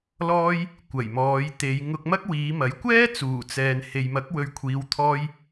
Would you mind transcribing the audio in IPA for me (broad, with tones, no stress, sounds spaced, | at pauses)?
l ɔː˥ j | kʷ ɐ˨˩ j m ɔː˨˧ j t̪ e˨˧ j ŋ ʊ˧ k̚ m ɐ˥ k̚ w iː˨˧ m ɐ˨˥ j kʷ ɛː˥ t͡s uː˨˩ t͡s ɛː˨ n h e˨ j m ɐ˨˥ k̚ w ɵ˨˧ ɥ kʷʰ iː˨˧ w t̪ʰ ɔː˧ j